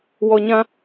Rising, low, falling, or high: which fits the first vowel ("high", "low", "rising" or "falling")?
low